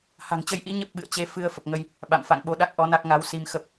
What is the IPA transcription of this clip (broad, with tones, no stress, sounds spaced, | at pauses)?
h a̤˨˩ ŋ t͡ɕ ə˧ j ʔ ḭ˧˥ ɲ ə˦˥ p̚ ɓ ɨ̰˧˨ ə̯ t͡ɕ e˨˦ f ɨ˧ ə̯ f ə˨˩ p̚ ŋ ə˧ j | ɓ a̰˧˨ m f a̰˧˨ ŋ ɓ o˧ ɗ a˦˥ k̚ ʔ ɔ˨˦ n a˦˥ k̚ ŋ a˨˦ w s i˧ m x ə˦˥ p̚